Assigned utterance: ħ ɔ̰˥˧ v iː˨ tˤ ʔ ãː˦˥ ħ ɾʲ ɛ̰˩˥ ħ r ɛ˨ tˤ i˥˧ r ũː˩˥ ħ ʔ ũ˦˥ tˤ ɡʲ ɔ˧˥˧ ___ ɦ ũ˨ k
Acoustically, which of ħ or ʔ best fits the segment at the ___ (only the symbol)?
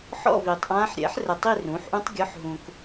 ħ